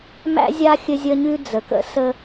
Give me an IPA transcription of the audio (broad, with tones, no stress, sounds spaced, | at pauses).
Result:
m æ̰˦ zʲ a˦ xʲ ɘ˦ zʲ ə˦ ɲ ʉ˦ d͡z ə˨ k ə̰˦ s ə˦